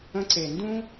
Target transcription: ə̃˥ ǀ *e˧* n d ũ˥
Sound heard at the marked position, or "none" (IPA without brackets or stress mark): e˧